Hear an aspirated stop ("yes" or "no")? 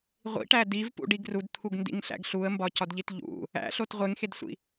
yes